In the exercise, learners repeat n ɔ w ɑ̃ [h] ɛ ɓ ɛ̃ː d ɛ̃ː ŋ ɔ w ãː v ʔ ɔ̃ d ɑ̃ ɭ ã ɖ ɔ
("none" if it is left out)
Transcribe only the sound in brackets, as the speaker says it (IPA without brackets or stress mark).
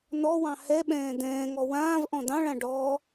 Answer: h